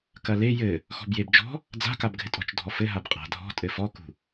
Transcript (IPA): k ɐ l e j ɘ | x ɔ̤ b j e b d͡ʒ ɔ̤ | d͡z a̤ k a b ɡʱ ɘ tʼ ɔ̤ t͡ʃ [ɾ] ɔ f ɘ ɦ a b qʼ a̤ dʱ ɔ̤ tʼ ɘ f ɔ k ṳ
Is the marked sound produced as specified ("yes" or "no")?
no